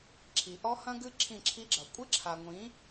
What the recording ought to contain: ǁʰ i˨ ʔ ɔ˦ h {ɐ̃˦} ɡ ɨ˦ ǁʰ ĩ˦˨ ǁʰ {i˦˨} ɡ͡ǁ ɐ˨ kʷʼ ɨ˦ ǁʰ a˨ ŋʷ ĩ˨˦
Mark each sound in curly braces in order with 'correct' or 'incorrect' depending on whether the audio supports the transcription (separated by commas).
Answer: correct, incorrect